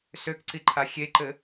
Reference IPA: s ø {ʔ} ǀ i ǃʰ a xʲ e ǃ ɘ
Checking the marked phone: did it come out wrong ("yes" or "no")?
yes